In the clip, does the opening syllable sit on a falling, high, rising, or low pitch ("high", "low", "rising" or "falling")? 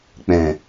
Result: low